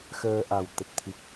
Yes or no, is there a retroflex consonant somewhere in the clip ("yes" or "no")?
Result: no